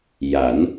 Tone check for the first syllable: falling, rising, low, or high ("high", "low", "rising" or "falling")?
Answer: rising